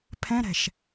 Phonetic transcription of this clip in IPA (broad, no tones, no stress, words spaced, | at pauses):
pʰɛ̃ɾɛ̤ʃ